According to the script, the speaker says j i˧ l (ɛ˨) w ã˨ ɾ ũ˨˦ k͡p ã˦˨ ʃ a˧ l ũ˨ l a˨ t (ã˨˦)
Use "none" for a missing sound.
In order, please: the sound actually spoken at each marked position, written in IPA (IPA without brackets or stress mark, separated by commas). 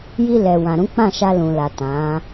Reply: ɛ˨, ã˨˦